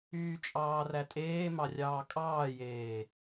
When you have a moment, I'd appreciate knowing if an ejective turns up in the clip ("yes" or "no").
yes